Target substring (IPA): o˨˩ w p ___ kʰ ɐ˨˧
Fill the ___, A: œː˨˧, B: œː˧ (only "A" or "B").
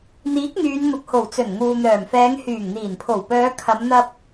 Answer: A